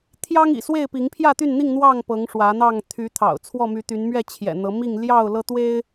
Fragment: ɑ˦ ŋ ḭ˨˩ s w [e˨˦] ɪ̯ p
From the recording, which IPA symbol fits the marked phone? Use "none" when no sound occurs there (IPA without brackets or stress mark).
e˥˨